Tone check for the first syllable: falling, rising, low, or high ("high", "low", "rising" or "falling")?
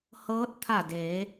rising